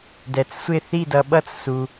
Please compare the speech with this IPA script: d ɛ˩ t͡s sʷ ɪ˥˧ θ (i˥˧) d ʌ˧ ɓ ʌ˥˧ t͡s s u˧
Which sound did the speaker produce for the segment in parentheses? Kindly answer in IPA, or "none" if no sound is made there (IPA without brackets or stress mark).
i˥˧